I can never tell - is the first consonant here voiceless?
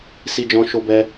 yes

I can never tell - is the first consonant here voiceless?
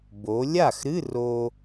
no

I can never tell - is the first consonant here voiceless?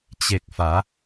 yes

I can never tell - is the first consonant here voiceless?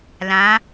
no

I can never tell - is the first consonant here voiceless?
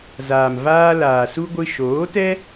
no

